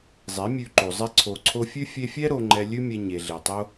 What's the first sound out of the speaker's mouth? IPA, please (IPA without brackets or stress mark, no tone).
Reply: zˤ